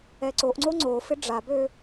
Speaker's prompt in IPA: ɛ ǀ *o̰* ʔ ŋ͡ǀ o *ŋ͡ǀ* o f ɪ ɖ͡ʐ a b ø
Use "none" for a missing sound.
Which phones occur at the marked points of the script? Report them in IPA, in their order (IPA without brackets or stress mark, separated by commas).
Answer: o, ŋ͡ǀ